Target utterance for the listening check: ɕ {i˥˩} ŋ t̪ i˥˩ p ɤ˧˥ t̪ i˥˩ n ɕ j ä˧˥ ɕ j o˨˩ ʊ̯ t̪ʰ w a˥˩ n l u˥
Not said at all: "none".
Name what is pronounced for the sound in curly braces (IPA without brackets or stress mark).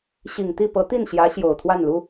i˨˩